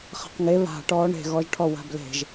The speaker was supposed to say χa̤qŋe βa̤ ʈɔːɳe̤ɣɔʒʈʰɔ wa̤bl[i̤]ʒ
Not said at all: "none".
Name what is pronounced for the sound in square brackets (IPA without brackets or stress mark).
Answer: e̤